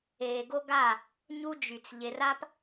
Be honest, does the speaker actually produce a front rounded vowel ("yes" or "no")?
yes